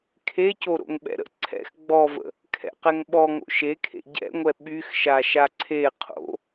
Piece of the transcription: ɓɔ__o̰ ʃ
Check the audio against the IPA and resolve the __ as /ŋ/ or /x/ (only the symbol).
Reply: ŋ